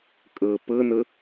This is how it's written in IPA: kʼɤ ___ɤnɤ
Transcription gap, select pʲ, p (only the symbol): p